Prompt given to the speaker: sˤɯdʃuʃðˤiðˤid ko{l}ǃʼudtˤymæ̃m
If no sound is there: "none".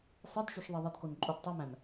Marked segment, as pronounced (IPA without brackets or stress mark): n